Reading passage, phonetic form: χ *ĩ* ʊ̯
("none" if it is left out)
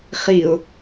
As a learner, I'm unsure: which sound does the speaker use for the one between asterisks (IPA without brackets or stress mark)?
i